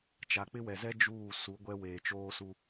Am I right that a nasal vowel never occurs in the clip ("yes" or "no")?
yes